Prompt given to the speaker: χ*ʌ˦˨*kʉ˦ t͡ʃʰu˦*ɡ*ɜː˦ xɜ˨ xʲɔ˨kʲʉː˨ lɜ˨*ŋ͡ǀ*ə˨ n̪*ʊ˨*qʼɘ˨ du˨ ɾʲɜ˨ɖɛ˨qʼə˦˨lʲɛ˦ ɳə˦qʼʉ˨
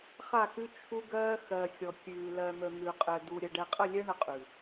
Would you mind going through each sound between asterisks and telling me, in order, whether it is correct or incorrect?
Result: incorrect, correct, incorrect, incorrect

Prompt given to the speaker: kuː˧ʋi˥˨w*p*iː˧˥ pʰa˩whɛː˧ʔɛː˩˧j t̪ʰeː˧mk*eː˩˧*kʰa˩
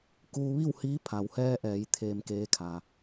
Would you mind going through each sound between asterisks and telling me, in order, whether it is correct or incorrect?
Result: incorrect, incorrect

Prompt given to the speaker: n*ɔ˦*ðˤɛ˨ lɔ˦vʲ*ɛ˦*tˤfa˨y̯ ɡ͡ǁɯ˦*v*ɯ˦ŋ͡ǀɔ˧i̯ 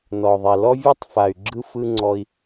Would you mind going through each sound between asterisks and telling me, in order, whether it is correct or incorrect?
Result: incorrect, correct, incorrect

